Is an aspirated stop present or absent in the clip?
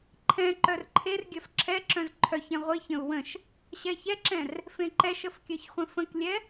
present